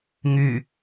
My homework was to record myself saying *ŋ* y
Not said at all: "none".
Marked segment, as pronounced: ŋ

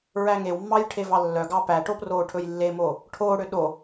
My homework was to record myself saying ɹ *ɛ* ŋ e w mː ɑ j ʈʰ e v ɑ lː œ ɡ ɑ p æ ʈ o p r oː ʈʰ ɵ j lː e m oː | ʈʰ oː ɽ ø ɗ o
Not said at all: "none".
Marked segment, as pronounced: æ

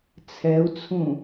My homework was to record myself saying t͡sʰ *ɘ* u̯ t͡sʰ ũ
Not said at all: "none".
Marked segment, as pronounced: ɛ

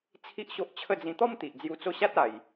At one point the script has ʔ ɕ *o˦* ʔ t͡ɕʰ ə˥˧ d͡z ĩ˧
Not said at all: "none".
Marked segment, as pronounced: o˦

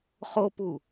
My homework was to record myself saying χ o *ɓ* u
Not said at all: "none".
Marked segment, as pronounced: p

